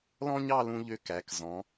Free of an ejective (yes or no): yes